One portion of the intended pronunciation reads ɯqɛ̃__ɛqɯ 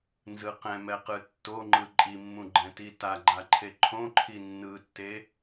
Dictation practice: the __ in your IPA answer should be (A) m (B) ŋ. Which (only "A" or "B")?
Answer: A